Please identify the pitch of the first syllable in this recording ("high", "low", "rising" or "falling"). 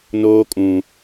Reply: high